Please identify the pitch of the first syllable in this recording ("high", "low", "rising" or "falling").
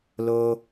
high